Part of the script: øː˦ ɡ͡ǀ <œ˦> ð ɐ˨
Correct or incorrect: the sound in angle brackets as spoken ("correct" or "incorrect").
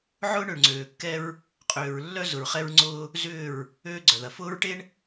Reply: incorrect